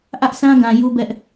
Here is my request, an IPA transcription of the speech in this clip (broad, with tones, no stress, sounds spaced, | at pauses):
ʔ ä˦ ʔ s ã˦ ɡ ã˨ j u˦ b ɛ˦ ʔ